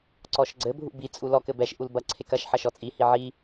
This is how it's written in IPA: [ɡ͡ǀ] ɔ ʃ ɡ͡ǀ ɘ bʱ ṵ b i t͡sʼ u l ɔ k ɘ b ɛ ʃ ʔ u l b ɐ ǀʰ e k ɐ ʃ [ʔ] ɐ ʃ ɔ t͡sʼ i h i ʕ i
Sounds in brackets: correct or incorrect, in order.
incorrect: ǀ, incorrect: ħ

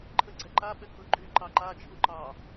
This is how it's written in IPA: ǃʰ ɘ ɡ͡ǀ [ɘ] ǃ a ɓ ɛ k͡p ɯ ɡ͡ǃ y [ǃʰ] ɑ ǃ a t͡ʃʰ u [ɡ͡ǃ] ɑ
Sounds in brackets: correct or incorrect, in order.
incorrect: ɛ, incorrect: ǃ, incorrect: ǃ

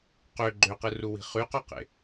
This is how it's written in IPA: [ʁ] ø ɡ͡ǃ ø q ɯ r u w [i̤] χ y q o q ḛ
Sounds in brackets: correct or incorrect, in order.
incorrect: q, correct

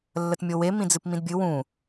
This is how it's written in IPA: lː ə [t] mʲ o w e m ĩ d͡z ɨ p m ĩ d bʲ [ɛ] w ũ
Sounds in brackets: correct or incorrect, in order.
correct, incorrect: ɨ

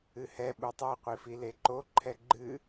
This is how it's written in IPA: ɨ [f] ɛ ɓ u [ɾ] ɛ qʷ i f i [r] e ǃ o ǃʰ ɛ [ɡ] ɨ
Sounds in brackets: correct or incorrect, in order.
incorrect: h, incorrect: tˤ, incorrect: l, incorrect: ɡ͡ǃ

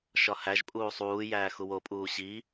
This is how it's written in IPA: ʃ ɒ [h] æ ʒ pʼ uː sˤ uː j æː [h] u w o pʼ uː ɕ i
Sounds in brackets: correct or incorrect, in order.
correct, incorrect: x

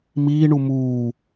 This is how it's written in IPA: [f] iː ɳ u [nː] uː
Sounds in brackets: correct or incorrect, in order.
incorrect: m, incorrect: m

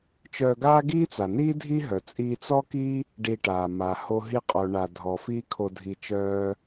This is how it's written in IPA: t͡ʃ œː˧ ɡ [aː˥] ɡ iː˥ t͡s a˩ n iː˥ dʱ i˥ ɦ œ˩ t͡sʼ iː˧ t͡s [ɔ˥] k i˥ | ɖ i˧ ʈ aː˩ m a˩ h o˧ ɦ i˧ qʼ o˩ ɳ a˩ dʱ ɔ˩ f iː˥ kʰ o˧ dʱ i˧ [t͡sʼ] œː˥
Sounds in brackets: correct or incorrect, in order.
correct, correct, incorrect: t͡ʃ

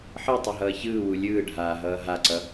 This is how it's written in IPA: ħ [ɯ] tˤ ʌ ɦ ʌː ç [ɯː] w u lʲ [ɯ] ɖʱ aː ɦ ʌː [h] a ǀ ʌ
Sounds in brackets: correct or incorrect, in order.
correct, correct, incorrect: ɯː, incorrect: ɦ

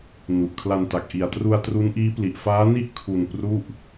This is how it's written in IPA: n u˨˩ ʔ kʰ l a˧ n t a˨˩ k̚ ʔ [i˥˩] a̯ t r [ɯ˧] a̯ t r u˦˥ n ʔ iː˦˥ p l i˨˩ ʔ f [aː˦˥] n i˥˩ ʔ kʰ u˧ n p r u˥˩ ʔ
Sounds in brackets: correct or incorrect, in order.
incorrect: i˨˩, incorrect: u˧, correct

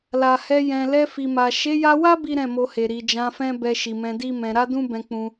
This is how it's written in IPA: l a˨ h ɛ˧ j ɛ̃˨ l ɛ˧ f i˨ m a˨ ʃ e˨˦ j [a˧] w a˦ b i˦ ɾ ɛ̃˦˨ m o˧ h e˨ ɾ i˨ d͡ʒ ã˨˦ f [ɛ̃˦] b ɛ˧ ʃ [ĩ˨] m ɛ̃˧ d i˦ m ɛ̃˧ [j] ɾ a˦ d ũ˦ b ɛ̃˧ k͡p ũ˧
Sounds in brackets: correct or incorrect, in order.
correct, correct, incorrect: i˨, incorrect: none

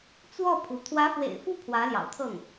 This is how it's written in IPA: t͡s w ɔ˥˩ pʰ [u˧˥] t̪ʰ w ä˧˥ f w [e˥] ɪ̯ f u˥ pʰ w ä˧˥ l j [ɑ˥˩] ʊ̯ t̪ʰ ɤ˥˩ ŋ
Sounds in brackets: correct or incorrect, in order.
correct, incorrect: ḛ˨˩, incorrect: ɑ̰˨˩

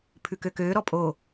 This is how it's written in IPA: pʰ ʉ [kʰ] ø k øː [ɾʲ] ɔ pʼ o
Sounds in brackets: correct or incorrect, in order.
incorrect: k, incorrect: ɾ

